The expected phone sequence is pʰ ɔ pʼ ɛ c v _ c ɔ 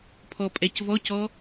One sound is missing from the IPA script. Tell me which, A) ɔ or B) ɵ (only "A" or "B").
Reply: A